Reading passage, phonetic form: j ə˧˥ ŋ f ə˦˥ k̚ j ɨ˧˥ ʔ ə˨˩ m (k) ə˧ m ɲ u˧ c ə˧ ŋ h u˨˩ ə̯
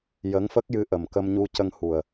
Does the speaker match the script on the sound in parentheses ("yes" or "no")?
yes